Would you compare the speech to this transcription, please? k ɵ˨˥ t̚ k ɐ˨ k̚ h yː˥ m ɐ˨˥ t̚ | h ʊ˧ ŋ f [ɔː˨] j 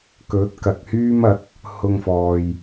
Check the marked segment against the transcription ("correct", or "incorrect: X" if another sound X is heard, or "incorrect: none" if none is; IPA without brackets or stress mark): correct